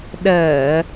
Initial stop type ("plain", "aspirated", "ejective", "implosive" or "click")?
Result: implosive